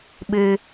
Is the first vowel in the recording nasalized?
no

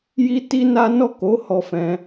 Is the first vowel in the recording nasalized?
no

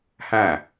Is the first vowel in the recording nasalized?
yes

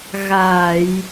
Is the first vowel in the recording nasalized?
no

